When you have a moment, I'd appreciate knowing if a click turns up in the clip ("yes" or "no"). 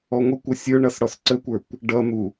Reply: yes